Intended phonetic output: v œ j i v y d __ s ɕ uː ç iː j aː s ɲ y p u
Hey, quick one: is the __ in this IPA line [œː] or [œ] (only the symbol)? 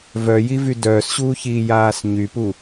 œː